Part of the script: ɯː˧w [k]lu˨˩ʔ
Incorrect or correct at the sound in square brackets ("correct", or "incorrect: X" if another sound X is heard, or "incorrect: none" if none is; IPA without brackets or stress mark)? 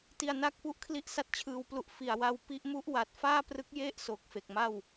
incorrect: p